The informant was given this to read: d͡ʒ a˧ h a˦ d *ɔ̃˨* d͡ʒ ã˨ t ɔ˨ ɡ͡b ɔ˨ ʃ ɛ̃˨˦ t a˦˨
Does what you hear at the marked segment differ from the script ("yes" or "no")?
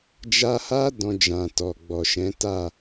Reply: yes